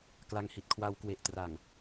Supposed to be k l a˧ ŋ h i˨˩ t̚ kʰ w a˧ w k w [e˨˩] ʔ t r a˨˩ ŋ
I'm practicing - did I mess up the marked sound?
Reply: no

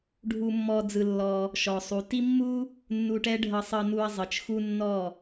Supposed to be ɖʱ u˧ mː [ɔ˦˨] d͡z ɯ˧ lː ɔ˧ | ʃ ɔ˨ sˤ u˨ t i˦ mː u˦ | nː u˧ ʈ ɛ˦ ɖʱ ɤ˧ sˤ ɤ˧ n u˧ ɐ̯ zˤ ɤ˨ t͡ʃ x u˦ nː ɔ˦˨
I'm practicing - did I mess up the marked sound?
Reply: yes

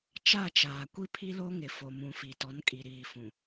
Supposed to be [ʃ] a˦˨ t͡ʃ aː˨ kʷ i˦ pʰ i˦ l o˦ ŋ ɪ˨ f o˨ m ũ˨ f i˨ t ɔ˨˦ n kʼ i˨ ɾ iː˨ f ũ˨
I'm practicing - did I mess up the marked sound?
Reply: yes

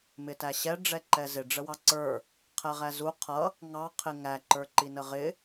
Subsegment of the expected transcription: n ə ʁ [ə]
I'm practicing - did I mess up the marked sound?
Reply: yes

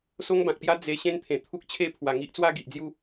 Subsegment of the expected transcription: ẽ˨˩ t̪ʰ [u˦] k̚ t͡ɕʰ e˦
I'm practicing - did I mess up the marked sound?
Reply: no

